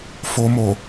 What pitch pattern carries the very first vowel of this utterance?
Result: low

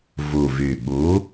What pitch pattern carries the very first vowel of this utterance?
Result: low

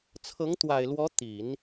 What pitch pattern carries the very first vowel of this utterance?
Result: rising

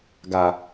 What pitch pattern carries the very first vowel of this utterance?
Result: low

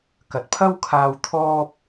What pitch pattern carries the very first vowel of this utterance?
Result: low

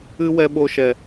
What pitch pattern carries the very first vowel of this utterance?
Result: high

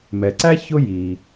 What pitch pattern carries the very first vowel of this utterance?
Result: low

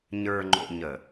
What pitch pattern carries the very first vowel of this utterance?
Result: low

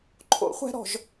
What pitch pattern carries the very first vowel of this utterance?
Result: high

